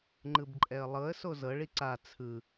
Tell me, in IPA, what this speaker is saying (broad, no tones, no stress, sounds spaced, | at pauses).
ŋ͡ǃ ɯ b ǃʼ ɛ ə̯ lˠ ɤ ə̯ s o z ɤ ɭ i ǀ a t͡sʰ ɯ